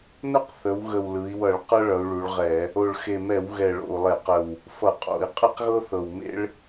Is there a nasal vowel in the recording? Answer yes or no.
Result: no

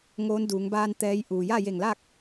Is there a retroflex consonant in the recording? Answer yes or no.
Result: no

